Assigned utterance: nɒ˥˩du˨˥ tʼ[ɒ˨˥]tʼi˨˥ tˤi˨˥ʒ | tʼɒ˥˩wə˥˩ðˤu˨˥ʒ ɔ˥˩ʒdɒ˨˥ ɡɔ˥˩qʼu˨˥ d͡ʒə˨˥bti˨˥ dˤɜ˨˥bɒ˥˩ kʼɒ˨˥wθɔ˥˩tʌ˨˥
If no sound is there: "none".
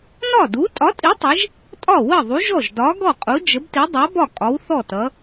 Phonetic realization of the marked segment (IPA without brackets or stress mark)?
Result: ɒ˨˥